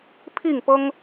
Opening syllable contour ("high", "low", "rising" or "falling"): falling